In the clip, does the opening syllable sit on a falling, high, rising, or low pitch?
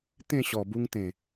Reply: falling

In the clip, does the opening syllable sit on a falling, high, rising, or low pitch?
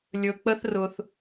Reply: low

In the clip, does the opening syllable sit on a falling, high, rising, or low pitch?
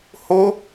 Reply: high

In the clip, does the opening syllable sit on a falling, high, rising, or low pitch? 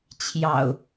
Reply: low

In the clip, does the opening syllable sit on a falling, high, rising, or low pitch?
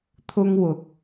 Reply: high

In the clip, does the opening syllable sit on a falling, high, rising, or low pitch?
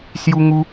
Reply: high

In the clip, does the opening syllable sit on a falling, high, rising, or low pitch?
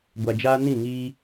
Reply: low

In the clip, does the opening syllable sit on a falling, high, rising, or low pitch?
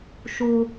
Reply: high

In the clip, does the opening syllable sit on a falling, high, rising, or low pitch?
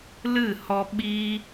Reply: falling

